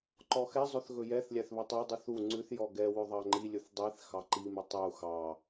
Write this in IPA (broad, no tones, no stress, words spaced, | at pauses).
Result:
ǃɔxɛzˤɵθ ɣɵjɛθlʲæθ βɵtˤœdˤyθ u ŋ͡ǀʉθjɔ ɡɛwɵ ðˤɑŋ͡ǃilʲɵθ dˤiθ xɑǃimʉ tˤu xɑ